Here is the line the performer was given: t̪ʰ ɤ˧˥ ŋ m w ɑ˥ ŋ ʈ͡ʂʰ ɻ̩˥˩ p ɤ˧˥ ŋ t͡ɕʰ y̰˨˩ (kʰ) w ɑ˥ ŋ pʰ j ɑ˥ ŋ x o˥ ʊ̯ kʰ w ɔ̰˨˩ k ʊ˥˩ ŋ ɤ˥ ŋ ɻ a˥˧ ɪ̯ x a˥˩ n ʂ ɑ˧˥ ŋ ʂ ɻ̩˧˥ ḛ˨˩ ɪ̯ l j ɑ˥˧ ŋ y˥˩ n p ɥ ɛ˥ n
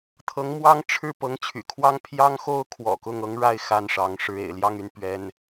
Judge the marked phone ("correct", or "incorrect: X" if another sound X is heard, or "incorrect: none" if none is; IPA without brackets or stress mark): correct